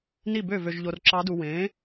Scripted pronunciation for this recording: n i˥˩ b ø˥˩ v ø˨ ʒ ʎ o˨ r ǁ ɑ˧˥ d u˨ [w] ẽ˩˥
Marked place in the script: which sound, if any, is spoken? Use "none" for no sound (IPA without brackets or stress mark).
w